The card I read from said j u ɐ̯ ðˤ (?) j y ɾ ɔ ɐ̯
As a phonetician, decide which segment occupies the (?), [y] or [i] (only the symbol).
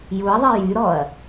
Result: i